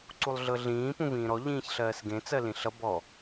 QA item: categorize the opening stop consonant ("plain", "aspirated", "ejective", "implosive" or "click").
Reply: click